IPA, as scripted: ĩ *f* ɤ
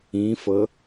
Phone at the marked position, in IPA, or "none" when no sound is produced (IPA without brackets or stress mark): f